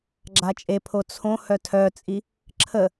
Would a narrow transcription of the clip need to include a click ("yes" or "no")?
yes